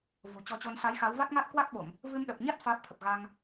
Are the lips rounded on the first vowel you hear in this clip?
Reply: yes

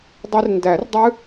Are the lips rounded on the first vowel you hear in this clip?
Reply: no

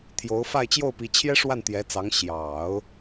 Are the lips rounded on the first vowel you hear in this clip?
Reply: yes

